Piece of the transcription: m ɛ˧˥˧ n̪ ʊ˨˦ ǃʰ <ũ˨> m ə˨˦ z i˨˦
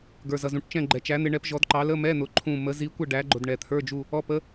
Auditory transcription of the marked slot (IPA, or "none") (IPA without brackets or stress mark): ũ˦˨